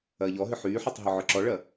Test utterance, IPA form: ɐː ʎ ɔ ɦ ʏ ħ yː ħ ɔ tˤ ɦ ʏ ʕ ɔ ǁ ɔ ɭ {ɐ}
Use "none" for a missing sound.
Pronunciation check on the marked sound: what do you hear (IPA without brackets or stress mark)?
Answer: ɐ